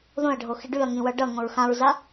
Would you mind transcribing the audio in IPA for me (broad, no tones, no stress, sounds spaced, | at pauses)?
ð õ ɐ̯ ɖʱ o x i ɖ ʉ ɐ̯ ŋ ĩ w ʌ ɖ ʌ ŋ õ ɹ x ã ɹ z a